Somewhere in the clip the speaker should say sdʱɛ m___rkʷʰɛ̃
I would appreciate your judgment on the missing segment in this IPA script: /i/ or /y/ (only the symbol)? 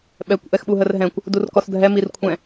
i